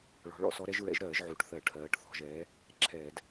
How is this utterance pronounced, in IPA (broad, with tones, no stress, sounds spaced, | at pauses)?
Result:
ɭ ɔ̤˩˧ ɭ ɔ̰˧˩˧ s ɔ˨˥ ɾ ɛ˨˥ ʒ ɹ ɛ̰˨˥ ʒ ɾ ɜː˧˩˧ ʒ ʕ u˩˧ ʈ θ ɜ˧˩˧ ʈʰ ɜː˩˧ ʈ θ ɔ̤˧˩˧ ʒ ɛː˨˥ | ǁʰ ɛː˧˩˧ d